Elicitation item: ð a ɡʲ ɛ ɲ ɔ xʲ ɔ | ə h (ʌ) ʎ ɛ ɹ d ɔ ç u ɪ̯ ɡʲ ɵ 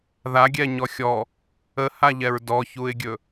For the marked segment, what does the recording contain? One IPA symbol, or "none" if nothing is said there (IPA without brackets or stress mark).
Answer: a